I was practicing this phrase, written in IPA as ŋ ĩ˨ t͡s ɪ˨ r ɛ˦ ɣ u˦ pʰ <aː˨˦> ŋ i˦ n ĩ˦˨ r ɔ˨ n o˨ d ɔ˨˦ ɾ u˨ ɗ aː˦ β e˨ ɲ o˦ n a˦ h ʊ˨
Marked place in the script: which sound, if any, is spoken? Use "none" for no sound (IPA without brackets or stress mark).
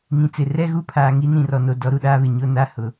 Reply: aː˨